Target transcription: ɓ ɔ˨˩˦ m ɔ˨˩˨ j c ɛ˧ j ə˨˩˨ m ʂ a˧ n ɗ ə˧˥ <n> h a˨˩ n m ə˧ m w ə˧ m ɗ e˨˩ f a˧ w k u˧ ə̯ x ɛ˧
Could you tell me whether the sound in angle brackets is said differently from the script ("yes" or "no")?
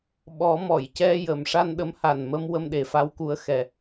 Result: yes